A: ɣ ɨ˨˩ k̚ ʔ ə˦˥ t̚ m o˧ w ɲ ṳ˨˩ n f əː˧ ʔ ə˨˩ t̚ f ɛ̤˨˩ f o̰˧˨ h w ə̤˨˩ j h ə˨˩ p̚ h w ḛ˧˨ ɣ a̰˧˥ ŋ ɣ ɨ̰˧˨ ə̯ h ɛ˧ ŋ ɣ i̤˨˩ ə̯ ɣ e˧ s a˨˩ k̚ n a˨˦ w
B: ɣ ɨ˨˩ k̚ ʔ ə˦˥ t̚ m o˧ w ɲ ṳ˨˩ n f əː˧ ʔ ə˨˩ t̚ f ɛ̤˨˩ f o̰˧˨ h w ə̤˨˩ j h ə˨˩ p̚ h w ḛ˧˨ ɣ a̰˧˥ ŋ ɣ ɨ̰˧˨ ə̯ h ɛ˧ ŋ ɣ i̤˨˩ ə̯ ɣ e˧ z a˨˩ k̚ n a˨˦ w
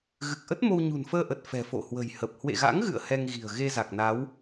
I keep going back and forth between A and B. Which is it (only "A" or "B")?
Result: B